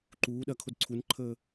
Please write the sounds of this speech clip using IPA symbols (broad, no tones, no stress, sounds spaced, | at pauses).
ǃ uː ɗ ɐ kʰ o d ǀʰ u n ǃʰ əː